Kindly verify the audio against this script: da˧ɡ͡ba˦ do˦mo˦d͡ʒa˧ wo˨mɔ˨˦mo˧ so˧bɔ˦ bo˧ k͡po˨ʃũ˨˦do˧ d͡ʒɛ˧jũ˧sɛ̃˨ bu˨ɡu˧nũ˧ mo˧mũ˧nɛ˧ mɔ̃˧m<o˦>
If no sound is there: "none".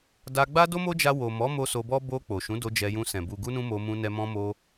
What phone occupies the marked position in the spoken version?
o˧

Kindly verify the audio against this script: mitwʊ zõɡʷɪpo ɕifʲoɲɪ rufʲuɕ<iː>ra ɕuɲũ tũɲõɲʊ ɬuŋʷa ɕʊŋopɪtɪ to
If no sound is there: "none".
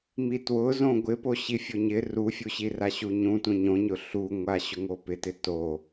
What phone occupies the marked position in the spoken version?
i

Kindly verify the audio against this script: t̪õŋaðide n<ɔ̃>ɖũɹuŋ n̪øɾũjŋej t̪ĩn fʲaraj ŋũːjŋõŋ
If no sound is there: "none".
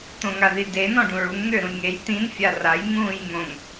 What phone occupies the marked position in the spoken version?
ɔ̃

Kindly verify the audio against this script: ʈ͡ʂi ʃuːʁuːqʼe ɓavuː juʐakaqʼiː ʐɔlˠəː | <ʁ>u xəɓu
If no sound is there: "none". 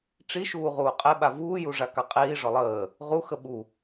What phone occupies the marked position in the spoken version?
ʁ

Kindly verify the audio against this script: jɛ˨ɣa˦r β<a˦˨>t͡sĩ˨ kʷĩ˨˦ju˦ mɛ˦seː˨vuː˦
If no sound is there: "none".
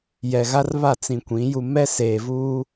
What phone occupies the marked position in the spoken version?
a˦˨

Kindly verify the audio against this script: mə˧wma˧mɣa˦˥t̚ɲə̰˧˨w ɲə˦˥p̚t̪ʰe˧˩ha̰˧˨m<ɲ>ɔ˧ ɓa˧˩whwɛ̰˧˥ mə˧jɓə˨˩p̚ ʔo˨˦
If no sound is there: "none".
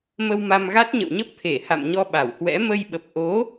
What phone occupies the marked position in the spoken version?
ɲ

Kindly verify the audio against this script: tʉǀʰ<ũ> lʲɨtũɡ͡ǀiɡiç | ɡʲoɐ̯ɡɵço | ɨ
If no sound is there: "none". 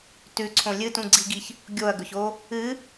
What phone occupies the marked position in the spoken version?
õ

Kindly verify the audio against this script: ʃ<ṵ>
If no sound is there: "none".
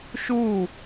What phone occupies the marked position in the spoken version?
u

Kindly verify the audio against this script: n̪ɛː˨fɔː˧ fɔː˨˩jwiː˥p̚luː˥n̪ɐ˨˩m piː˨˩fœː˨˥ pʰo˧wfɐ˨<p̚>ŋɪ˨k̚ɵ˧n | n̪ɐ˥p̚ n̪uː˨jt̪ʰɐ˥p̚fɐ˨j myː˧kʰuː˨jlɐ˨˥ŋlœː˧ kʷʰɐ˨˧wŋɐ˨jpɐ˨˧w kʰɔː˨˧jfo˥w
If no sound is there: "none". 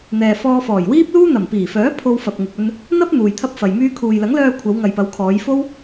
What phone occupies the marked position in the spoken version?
p̚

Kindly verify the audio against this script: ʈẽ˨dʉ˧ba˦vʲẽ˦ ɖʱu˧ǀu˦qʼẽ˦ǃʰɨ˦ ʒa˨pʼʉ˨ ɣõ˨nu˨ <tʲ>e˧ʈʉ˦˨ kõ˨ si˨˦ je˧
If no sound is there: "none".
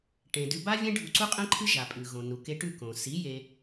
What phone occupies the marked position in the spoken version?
k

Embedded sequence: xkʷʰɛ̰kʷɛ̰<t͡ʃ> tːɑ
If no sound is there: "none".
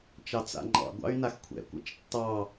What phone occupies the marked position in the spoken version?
t͡ʃ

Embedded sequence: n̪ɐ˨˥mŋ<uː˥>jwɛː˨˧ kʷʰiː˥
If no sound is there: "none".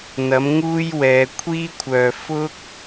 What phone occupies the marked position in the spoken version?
uː˥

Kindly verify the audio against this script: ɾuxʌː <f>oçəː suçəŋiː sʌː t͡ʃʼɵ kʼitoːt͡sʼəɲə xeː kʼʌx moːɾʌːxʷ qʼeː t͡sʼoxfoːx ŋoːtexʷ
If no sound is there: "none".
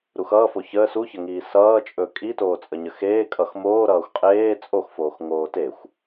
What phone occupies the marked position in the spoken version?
f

